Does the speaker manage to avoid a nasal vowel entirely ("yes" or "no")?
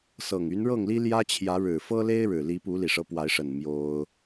yes